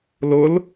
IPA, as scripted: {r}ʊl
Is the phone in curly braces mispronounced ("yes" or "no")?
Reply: yes